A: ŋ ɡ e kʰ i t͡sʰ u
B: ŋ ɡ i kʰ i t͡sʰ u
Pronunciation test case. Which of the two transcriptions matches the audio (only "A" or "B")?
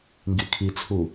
B